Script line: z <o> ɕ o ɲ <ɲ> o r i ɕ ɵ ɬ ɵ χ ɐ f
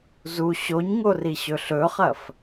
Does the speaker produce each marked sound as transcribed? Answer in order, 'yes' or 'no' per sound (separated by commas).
no, no